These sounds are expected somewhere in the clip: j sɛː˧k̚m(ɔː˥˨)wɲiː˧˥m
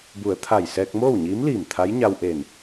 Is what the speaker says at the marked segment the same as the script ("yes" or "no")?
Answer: no